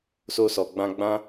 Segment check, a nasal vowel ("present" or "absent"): present